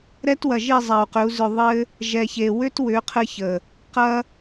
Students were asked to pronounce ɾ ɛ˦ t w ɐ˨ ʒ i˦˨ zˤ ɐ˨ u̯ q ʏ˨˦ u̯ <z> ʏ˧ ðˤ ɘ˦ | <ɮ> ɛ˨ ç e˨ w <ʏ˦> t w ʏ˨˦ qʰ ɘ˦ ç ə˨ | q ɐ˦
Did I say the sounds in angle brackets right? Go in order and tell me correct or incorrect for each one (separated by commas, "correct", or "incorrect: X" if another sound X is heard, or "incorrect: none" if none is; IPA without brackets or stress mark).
correct, incorrect: ʒ, correct